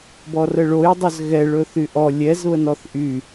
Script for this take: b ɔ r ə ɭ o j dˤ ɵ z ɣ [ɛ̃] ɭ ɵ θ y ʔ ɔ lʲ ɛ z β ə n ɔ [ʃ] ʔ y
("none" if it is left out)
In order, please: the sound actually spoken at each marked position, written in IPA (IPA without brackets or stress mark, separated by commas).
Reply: ɛ, θ